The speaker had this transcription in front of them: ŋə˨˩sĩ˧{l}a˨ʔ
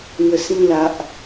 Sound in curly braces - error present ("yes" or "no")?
no